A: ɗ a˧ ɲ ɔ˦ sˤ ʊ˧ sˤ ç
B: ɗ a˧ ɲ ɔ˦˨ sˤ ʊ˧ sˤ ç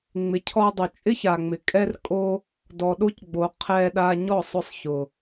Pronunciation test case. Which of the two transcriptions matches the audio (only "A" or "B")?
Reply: B